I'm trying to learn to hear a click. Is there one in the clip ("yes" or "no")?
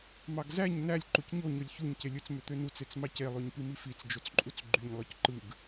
yes